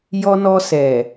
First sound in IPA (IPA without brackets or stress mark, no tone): j